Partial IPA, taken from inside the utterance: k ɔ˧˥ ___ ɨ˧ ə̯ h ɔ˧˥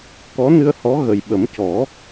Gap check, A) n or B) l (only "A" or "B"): A